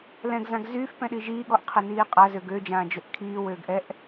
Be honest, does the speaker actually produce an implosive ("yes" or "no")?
yes